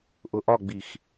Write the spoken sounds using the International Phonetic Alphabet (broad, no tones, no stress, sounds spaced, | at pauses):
ʔ ʊ ʔ ɒ ɡ͡b i x